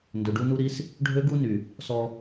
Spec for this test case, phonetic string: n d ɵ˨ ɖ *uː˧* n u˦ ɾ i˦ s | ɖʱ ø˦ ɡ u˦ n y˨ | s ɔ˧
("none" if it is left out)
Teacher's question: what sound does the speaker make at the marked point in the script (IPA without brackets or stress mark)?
u˧